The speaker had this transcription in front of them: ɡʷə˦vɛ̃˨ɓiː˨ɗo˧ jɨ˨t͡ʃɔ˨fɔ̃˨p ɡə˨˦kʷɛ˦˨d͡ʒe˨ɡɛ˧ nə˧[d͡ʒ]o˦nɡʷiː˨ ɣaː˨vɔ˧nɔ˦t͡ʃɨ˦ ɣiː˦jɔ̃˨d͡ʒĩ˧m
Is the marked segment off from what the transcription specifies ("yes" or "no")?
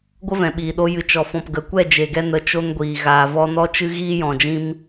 yes